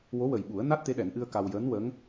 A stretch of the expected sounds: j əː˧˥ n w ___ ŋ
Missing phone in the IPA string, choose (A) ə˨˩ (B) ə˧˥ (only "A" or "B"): B